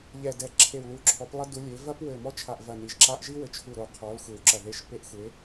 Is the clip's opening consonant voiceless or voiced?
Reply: voiced